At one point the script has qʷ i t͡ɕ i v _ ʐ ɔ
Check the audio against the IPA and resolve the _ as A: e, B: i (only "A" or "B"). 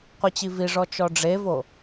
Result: B